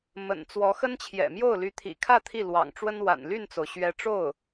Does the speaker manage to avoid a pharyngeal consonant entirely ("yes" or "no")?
yes